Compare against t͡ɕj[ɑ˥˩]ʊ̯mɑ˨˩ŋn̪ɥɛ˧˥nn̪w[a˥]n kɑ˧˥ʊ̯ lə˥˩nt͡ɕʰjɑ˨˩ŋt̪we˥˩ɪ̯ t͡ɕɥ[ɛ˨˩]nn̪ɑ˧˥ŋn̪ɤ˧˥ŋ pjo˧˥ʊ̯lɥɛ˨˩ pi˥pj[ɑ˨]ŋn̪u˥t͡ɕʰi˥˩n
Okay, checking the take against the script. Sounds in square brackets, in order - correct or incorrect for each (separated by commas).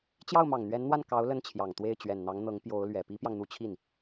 correct, incorrect, correct, correct